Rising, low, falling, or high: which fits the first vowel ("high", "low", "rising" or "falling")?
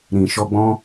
low